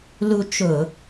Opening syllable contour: high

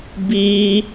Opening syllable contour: high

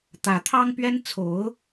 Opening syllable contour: rising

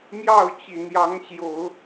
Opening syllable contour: falling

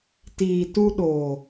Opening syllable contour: low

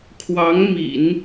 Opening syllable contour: rising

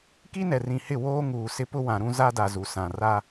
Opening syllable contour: high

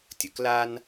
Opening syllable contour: low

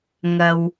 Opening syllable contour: low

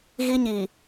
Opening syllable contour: high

